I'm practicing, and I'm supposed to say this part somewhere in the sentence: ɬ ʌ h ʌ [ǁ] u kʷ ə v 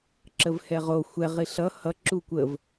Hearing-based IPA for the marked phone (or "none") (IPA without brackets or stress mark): ǁ